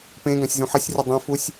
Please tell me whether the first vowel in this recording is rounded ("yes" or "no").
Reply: no